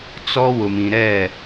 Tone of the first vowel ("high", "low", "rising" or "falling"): high